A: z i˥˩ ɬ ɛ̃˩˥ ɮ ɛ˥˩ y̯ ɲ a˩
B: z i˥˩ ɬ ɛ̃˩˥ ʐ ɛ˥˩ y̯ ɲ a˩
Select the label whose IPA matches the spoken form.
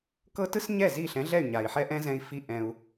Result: A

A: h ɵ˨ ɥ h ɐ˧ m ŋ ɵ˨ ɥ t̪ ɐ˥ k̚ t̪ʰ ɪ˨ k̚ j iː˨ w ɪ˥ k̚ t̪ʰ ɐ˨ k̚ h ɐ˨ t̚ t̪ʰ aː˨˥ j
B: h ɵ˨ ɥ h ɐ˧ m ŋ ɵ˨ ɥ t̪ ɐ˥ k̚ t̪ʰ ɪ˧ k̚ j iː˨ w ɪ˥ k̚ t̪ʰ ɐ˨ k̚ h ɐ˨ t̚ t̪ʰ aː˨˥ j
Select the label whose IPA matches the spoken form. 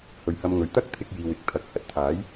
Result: B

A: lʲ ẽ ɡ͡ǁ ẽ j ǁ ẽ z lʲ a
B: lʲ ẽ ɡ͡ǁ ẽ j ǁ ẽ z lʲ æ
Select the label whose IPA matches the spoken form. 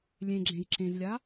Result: A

